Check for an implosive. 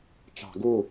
absent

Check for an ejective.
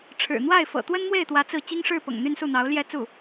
absent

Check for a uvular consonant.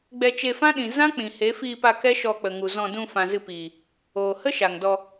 absent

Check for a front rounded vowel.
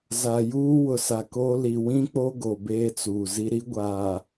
absent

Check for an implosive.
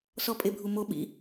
present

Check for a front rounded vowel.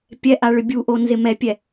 present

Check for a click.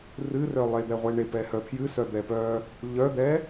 absent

